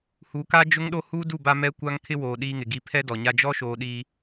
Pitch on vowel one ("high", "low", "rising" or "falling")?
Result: rising